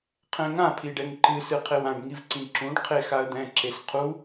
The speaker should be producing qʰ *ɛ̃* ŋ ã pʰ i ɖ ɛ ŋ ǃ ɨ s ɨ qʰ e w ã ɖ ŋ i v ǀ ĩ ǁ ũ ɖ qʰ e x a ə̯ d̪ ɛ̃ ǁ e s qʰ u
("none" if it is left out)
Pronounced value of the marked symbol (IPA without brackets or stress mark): ɛ̃